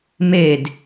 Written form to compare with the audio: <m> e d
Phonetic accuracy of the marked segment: correct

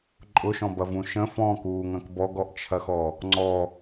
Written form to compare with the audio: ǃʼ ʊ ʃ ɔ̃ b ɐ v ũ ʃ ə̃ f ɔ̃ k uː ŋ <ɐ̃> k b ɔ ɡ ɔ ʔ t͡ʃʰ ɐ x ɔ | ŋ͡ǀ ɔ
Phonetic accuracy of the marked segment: correct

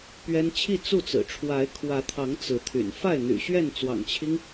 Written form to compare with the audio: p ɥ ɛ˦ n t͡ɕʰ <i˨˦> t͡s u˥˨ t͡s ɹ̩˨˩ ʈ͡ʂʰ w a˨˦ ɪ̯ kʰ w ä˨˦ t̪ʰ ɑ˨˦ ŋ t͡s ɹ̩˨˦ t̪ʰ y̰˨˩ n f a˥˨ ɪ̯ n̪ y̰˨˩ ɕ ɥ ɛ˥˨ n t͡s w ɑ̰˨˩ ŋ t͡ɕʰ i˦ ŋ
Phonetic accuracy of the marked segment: incorrect: i˥˨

